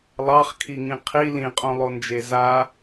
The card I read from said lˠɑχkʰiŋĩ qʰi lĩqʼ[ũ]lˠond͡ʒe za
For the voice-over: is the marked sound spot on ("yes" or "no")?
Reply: no